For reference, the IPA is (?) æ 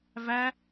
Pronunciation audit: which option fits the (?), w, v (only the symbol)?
v